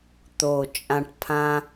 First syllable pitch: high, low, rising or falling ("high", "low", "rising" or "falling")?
low